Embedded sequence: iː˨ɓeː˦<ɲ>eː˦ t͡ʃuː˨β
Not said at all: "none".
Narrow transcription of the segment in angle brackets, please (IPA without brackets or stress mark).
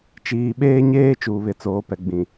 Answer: ɲ